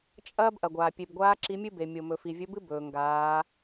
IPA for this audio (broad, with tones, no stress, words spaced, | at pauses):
t͡ʃʼɐː˥bʔɐ˩ɡʷaː˩ pʲe˩bɡʷaː˧˥ ǁi˧˥mʲɨ˥be˩ mʲo˩mɵ˩ fi˩vʲɵ˧˥bɨ˥ bɵː˩ ŋɡaː˩˧